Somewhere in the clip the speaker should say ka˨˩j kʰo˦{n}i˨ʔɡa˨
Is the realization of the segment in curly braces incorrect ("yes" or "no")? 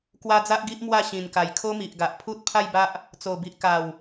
yes